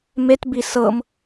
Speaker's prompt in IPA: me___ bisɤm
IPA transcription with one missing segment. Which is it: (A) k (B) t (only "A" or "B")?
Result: B